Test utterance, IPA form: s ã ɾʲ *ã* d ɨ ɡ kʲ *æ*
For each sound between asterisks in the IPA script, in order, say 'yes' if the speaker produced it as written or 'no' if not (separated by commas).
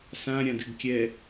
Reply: yes, no